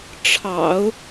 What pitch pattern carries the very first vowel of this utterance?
low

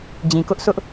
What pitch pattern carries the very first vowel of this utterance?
low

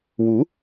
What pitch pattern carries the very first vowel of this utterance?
rising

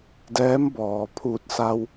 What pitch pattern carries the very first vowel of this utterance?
rising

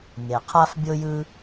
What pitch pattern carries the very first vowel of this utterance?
low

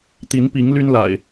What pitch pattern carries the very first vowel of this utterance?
rising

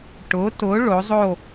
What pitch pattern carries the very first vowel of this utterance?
rising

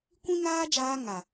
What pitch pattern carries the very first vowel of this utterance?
high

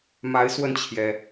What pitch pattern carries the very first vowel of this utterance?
rising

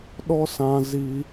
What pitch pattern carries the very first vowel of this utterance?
high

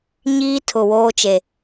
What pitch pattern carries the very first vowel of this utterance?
high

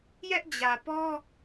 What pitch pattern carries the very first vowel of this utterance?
high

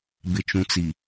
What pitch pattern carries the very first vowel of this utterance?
low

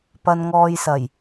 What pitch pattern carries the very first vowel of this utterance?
low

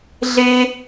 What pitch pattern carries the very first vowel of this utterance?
high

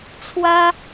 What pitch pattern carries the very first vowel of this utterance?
high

